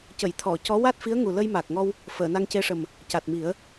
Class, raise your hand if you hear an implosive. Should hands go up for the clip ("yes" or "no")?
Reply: no